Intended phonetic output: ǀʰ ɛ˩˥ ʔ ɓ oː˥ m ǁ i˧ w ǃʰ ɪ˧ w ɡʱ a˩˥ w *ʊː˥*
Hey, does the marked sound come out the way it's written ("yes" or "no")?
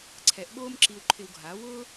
yes